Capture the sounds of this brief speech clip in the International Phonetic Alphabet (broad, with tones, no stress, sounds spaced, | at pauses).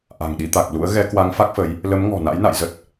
ʔ a̤˨˩ ŋ ɗ i˧ t̪ a˨˩ k̚ l ṵ˧˥ ə̯ ɣ ɛ˨˦ k w a˨˦ ŋ f a˦˥ k̚ f ə˨˦ j | l ə˨˦ m ŋ ɔ̤˨˩ n a̰˧˥ j n a̰˧˨ j z ə˦˥ t̚